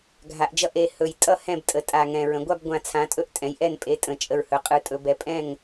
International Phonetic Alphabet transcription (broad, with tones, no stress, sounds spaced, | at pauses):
ɡʱ a˩˧ ʔ d͡ʒ ʌ˦˨ ʔ e˩˧ h ɵ˨˩ j tʼ ʌ˦˨ h ɛ̃˦˨ b tʼ ə˩˧ tʼ a˨˩ ŋ ɛ̃˨˩ ɹ ə̃˩˧ ɡʷ a˦˨ b ɡʷ ã˨˩ t͡sʰ ã˩˧ tʼ ɵ˦˨ ʔ tʼ ɛ̃˩˧ j ʔ ɛ˦˨ n pʼ e˩˧ tʼ ə̃˨˩ t͡ʃʼ ə˨˩ ɹ h ɵ˩˧ qʼ ɯ˩˧ tʼ ɵ˩˧ b ɛ˨˩ pʼ ɛ̃˦˨ ŋ